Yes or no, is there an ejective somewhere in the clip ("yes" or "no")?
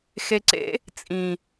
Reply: yes